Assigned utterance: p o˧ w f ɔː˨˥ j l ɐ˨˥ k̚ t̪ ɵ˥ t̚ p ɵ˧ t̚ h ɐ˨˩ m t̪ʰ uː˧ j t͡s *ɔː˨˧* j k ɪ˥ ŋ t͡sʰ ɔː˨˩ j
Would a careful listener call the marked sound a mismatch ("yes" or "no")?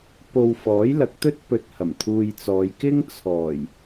no